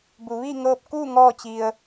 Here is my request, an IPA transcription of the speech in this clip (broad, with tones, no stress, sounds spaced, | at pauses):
b u˩˧ ʋ i˥˨ ŋ ɤː˧ p̚ k uː˥˨ ŋ ɔː˥˨ t͡ɕ i˧ ə̯